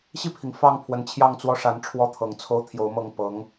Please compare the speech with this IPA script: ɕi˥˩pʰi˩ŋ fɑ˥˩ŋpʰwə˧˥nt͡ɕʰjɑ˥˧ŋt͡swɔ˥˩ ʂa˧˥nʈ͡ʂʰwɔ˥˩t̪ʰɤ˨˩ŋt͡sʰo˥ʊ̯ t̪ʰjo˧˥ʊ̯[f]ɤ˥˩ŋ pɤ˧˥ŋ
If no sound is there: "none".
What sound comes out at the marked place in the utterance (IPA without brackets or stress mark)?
m